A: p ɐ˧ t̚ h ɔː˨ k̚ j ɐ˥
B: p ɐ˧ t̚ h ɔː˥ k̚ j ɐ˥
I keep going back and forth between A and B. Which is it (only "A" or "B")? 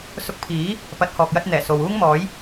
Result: A